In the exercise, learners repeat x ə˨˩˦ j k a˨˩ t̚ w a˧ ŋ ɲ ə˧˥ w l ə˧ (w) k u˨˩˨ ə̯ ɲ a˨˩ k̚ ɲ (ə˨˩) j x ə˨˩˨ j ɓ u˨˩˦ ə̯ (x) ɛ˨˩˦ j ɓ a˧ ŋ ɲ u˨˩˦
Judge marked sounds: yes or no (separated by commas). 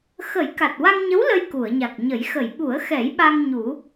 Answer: no, no, yes